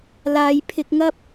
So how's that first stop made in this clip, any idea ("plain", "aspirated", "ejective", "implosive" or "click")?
aspirated